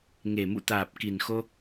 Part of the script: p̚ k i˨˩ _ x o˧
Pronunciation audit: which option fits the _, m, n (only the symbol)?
n